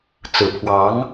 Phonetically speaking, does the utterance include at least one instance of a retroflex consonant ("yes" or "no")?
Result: no